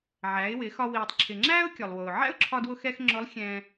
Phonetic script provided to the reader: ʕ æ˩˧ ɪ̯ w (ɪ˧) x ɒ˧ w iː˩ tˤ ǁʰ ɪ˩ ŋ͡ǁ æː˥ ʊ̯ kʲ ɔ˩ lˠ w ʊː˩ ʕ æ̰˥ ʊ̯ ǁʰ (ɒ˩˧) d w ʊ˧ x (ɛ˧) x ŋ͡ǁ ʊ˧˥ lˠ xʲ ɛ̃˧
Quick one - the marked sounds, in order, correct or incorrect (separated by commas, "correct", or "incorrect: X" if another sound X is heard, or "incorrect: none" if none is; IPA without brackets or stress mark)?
incorrect: ɪ˩˧, incorrect: ɒ˧, correct